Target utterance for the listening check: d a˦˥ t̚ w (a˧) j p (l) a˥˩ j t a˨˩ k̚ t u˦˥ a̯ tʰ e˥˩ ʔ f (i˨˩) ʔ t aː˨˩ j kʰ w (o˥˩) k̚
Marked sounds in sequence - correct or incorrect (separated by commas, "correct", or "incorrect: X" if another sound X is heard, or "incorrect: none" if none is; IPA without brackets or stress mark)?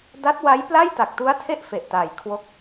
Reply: incorrect: a˦˥, correct, incorrect: e˨˩, incorrect: o˦˥